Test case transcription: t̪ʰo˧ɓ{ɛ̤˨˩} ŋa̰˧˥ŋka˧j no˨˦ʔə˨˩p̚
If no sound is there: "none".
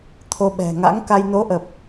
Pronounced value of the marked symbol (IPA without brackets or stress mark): ɛ̤˨˩